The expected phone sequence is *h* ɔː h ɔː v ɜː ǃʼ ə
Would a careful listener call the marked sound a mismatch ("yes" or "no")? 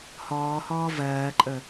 no